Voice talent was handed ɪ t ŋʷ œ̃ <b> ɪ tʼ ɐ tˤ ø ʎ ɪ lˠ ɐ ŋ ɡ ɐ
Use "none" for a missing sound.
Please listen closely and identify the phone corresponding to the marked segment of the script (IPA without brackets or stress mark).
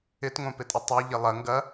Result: p